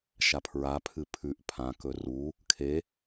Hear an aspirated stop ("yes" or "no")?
yes